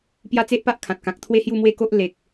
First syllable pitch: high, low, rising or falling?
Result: high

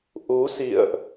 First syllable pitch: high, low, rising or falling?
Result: rising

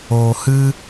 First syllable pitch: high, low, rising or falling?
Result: low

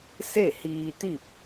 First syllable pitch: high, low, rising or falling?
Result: falling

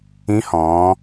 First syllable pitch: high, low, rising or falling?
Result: rising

